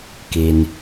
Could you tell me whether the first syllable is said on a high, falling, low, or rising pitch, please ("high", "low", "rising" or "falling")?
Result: low